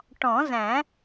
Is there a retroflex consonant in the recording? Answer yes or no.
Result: yes